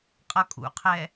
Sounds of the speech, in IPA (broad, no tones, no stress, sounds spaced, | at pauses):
qʼ ʌ kʼ ṵ qʰ ɛ